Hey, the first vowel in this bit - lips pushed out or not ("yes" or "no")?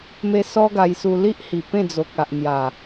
no